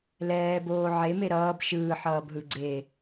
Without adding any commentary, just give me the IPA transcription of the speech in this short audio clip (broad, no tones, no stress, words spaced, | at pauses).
lɛːboː ʕeme ɾʌːb ʃɯːħʌːbɦɯ ɡ͡ǀe